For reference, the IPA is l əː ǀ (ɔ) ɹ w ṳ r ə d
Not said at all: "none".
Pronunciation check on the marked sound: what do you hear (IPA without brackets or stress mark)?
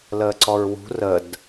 ɔ